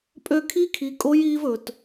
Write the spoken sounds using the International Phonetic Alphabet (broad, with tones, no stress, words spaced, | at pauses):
pʼø˧kʰi˧˥ kʰi˩˧kʼo˧˥j iː˧v ɵ˩t